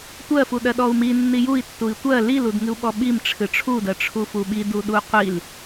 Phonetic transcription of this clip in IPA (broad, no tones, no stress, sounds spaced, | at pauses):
tʷ ɜ f u ɗ ɜ ɗ ɔ u̯ m i nː i j u i̯ tː u i̯ tʷ ɜ l i l u d ŋ ɨ u̯ ɓ ɔ ɓ i m ʈ͡ʂʰ ɨ ʈ͡ʂʰ u d ɜ ʈ͡ʂʰ u f u ɓ i d u ɗ u qʷ i l